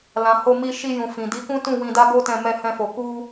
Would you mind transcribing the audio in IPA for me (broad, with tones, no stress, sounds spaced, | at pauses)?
l ã˨ h o˧ m i˧ ʃ i˧ j ũ˨ f ĩ˨ d i˨˦ k ũ˦ t ũ˦˨ w ĩ˧ d a˦ ɡ o˦ t ɛ̃˧ m ɛ˦ h ɛ̃˦ f o˧ k u˦